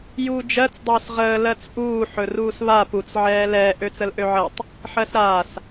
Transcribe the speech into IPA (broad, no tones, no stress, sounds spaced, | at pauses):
j uː d͡ʒ ɜ t͡s dˤ oː s ʁ əː l ɜ t͡s ʔ uː ħ ɵ r uː s β a p u t͡s ʕ ɛː l ɛː ʔ ø t͡s ə l ʔ ø ʕ ɜ tˤ | ħ ɜ s ɾ aː s